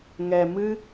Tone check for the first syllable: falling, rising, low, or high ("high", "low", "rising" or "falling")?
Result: low